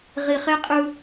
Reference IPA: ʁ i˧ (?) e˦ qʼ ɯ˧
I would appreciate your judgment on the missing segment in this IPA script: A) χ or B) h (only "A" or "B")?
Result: A